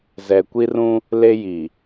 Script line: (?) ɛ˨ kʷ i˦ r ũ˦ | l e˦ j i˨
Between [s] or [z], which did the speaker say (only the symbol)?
z